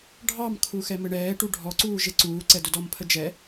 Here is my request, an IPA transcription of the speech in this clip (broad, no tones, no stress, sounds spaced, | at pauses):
ɖʱ ɑ m kʰ u x ɛ m ɘ ɳ ɛː ʈ u ɖʱ ɔ ǀ uː ʒ e ǀ uː ǀ ɛ d ʊ d ɔ m pʰ ə d͡ʒ ɛ